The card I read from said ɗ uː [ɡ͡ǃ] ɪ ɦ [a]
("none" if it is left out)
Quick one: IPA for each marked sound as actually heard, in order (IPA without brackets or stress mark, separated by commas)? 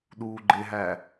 ɡ͡ǃ, æ